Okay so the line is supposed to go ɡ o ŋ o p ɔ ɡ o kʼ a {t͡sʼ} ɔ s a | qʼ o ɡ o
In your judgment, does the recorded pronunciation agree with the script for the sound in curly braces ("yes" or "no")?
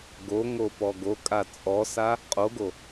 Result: yes